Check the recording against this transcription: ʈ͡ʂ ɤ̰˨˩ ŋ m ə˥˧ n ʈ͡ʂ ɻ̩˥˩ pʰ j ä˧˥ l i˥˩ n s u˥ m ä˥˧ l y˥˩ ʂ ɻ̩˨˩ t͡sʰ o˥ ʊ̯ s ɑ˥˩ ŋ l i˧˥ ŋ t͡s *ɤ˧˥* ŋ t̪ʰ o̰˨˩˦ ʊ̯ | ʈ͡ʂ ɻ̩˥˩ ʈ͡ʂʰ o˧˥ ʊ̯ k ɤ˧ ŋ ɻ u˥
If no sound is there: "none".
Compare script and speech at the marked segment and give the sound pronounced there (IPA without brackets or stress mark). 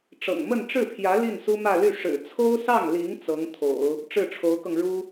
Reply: ɤ˧˥